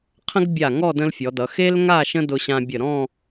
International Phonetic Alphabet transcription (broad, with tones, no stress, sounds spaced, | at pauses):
qʰ ə̃˥ ɡ bʲ a˧˩ ŋ ɔ˥˧ d ə̃˥ l fʲ ɔ˩˧ d ʌ˩˧ x e˥ l ŋ a˥˧ ʃ ə̃˥ d ʊ˧ ɕ ã˧ bʲ ə˧˩ ɾ ɔ̃˥˧